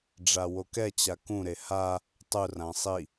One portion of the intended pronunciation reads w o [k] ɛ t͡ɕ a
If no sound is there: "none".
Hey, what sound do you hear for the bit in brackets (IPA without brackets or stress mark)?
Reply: k